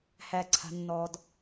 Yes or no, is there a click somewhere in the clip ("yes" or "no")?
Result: yes